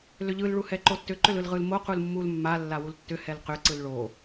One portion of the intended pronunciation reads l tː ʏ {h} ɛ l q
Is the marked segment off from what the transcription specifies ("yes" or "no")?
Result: no